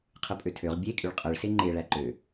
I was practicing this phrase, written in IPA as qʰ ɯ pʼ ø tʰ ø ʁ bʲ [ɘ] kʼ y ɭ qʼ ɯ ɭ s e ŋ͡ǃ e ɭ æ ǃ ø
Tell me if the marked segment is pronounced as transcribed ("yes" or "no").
no